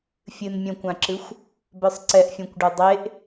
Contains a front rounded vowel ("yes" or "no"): yes